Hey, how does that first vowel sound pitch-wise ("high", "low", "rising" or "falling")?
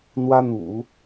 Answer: high